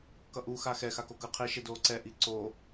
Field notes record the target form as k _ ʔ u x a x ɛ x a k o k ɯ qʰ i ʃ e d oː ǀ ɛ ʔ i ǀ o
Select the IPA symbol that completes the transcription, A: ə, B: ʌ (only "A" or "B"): B